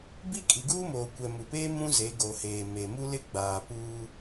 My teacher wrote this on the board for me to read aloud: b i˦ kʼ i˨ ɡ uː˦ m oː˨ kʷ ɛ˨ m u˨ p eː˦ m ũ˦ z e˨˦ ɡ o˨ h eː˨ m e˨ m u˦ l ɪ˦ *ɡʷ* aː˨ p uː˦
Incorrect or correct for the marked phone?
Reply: incorrect: ɡ͡b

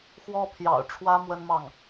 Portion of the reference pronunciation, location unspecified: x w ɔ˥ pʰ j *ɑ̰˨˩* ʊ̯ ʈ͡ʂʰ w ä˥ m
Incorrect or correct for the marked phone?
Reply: correct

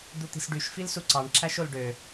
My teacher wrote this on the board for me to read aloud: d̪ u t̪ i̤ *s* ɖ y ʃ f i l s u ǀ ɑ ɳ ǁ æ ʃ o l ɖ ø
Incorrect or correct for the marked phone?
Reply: correct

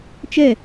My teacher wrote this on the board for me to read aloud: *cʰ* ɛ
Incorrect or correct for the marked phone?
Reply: incorrect: t͡ʃ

